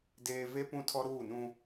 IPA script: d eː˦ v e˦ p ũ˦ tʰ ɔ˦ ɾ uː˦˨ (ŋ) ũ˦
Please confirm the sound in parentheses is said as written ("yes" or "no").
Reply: no